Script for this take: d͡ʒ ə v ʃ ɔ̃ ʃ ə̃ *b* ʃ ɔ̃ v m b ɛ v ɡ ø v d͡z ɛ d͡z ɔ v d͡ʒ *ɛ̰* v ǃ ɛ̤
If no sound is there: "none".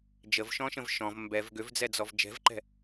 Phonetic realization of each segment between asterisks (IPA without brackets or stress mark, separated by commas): v, ɛ̤